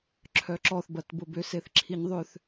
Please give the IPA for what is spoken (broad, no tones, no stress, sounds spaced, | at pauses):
ǁʰ œ ǁ ɔ θ b ɐ t b ʊ b ʏ s e θ ǁʰ i ɲ ðˤ ʏ θ